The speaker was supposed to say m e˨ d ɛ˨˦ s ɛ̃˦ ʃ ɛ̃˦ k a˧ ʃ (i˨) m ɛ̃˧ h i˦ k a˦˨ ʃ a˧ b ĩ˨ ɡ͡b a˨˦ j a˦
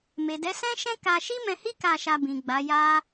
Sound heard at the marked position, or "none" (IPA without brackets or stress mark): i˦